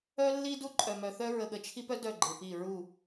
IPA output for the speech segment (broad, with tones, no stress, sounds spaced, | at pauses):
œ˦ lː i˦ d u˦ ǃʼ œ˨ m œ˨ θ œ˦ ɹ ə˨ ɠ ə˨ t͡ʃʰ i˦ p œ˦ d œ˦˨ ɡ͡ǃ ɪ˨ p i˦˨ ɹ u˦˨